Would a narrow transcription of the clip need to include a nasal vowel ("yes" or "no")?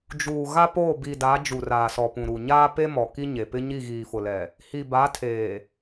yes